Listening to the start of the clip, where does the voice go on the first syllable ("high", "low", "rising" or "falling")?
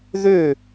falling